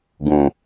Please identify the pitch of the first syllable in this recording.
low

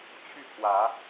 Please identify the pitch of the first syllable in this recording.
falling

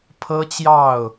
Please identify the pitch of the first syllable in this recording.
high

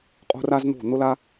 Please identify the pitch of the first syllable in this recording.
high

